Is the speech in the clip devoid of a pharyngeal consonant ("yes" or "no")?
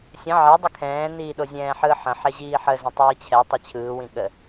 no